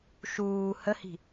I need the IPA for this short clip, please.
ʃ uː h ə h i̤

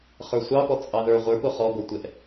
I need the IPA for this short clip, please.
χ ə˞ sʷ ɑ p ɔ t͡sʼ ɑ ð ə˞ ʁʷ ə˞ p ʊ χ ɔ ɡʷ ə˞ tʷ ɛ ʔ

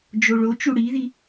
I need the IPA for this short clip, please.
d͡ʒ o ɭ o t͡ʃ u ɽ i ð i

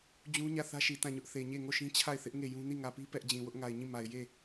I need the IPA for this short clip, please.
d͡ʑ ũ˦ ɲ ä˦˨ θ ä˦ ʃ i˨ t ã˦˨ ɲ ʊ˦ ʔ θ e˨ ɲ e˦˨ ŋ o˦˨ ʃ ĩ˦ t͡ɕʰ a˦˨ ɪ̯ θ ɪ˦ ʔ ŋ e˦˨ j ũ˦ n i˦˨ ŋ ä˨ p i˦ p ɛ˦ ʔ d͡ʑ ĩ˨ w ʊ˦ ʔ ŋ a˨ ɪ̯ ɲ ĩ˦˨ m a˨ ɪ̯ j e˦˨

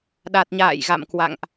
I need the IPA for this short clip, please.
ɗ a˨˩ t̚ ɲ a̰ː˧˨ j ɣ a̰˧˨ m k w a̰˧˨ ŋ ʔ

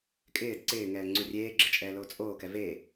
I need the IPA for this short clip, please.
kʼ ɪː d ǀ ɪː ŋ ɛː ŋ͡ǀ u rʲ eː ɡ͡ǁ ɪ t͡ʃʼ ɛː l oː t͡sʼ oː k ɛ v e

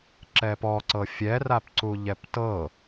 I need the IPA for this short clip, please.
ǁ ɛ p ɔ ǀ ɤ fʲ ɛ r a p ǀ u ʎ ɛ p t ɤ

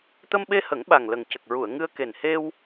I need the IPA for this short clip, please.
t̪ ə˧ m ɓ e˧ h ə˨˩˦ ŋ ɓ a˨˩ ŋ l ə˨˩ ŋ c ə˨˩ k̚ ɹ u˨˩˨ ə̯ ŋ ɨ˧ ə̯ k e˨˩ n h e˧ w

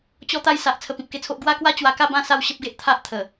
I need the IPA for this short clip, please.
t͡ɕ ɔ˦ t̪ a˦ j s a˨ ʔ t͡sʰ ə˧ p ĩ˨ p̚ k e˥˧ t͡sʰ o˦ ʔ ɡ w a˦ k w a˦ t͡ɕ w a˧ k a˥˧ b ã˥˧ s a˥˧ w ɕ ə˦ p̚ ɡ e˦ ʔ t̪ʰ a˦ ʔ t̪ʰ ə˨˩

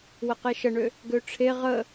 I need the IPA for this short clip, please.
w ə q e ʃ ə ɳ ø | ɡ ø ʈ͡ʂʰ e ʁ ə

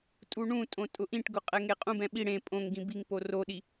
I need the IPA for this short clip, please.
tʼ u ɳ ũ tʼ õ tʼ ʊ ʔ ĩ ʈ ɡ ʊ qʼ ɛ ŋ e qʼ ũ b ɛ̃ ɓ i ɽ ẽ pʼ õ ŋ ɡ ĩ b i ŋ p o r o ɗ i

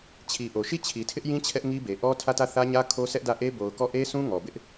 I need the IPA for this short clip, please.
t͡ɕʰ i˨ ʔ o˨ ʃ i˦˨ t͡ɕʰ i˨ tʰ ɪ˦ ʔ j ĩ˦ t͡ɕʰ ɛ˦ ʔ ŋ i˦ b e˨ ʔ ɔ˦ tʰ ä˦˨ t ä˦˨ θ ä˦ ɲ ä˦ kʰ o˦ sʰ ɛ˦ ʔ d ä˦˨ ʔ e˦ b o˨ ʊ̯ k ɔ˦˨ ʔ e˦ s ũ˦ ŋ ɔ˨ b ɪ˦ ʔ

